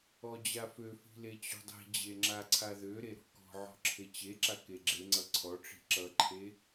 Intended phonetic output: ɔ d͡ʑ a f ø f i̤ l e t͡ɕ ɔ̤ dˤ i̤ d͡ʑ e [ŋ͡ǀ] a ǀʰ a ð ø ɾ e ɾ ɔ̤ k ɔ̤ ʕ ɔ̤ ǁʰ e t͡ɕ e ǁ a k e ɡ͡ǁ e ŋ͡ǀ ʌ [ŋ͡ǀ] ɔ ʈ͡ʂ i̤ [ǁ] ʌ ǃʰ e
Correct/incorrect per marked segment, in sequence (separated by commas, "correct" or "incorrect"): incorrect, incorrect, correct